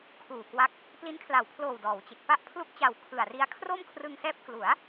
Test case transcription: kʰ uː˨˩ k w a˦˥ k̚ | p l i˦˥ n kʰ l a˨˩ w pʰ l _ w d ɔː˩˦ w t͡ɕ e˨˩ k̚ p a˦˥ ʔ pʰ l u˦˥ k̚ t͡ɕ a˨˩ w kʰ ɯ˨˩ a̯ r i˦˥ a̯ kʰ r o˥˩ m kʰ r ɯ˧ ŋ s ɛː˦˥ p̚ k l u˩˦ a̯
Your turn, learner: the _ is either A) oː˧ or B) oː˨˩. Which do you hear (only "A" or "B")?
B